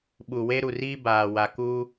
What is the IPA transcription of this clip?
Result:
ɓ u˨ w e˦ ɾ u˨ r iː˦ b aː˨ w a˨ k u˦

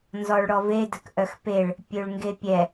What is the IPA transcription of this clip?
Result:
n z ɔ ɭ ɽ ɔ v e d ə k ʔ œ x p e ɭ | pʲ ø ɭ ŋ ɡ e pʲ ɛ

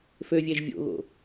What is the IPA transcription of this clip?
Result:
f ø vʲ ɛ ʒ vʲ o̰ ɣ o̰

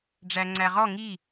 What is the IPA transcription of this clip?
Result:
ɖ͡ʐ æ ŋ͡ǀ æ ʁ ɔ ŋ i

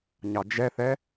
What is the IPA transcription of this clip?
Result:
ɲ ɑ d͡ʒ ɛ θ ɛ

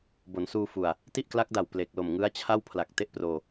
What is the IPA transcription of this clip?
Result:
b o˩˦ n s uː˧ f u˨˩ a̯ | t i˥˩ ʔ k l a˦˥ k̚ d a˨˩ w p l e˨˩ k̚ l o˨˩ m ŋ ɯ˦˥ a̯ t͡ɕʰ a˥˩ w pʰ l a˨˩ k̚ t e˥˩ ʔ p r oː˧

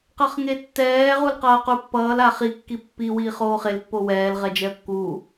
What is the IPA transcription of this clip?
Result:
q ʌ χ ŋ e tː ɛː ʁ u l q ʌː q u pː ʌː l a χ i kː i pː i w iː χ oː χ e l pː o w ɛː l ʁ ɛ d͡ʒ ɛ ə̯ kː u

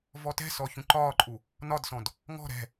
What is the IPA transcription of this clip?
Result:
v ɔ t ɛ̤ s ɔ ç ũ ǃ ɒː ǃʼ u | n ɒ d s ɔ̃ d | ŋ ɔ̤ ɾ ɛ̤

